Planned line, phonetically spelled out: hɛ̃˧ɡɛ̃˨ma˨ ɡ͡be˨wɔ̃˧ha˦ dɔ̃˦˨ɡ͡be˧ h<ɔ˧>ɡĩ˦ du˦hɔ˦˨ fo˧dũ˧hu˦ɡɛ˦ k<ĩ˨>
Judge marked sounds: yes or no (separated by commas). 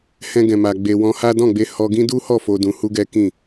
yes, no